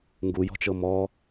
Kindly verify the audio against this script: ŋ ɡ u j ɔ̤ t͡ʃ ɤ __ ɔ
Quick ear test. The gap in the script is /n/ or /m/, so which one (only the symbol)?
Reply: m